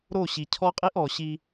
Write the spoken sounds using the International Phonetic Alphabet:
ɾ o˦˨ ɕ i˨ cʰ ɔ˦ qʼ i˦ ʔ ɔ˨ ɕ i˦

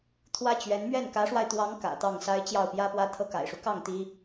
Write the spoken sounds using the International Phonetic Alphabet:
t̪ʰ w ä˥ t͡ɕ ɥ ɛ˧˥ n m ɥ ɛ˥˩ n k ä˧˥ ʂ w a˧ ɪ̯ t̪ w ɑ˧˥ ŋ k ä̰˨˩ t̪ ɑ˥˩ ŋ s a˥ ɪ̯ t͡ɕ j ɑ˥˩ ʊ̯ p j ä˥ p w ä˥ t̪ʰ ɤ˥ k a̰˨˩ ɪ̯ ʂ u˦ k ɑ˥˩ ŋ t̪ i˥

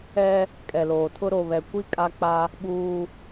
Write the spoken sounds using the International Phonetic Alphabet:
ɛ˦ | kʼ ɛ˨ l oː˨ tʰ ʊ˦ ɾ o˨ β ɛ˨ kʷ i˦ kʼ a˦ k͡p a˦ | ɓ uː˦

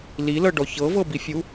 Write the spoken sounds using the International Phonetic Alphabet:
l i l ɤ ɖ ɔ ç ɤ v ɤ b i fʲ u

